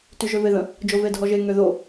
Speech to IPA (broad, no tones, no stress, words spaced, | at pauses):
tyʒøveðə̃ | d͡ʒovedʱɔʒe ŋøðo